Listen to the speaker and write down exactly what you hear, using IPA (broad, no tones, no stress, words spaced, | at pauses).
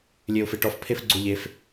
lʲeʊ̯feʈɔf pʰefɡ͡ǀo ʎef